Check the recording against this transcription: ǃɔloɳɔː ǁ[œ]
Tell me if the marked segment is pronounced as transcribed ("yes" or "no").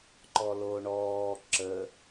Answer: no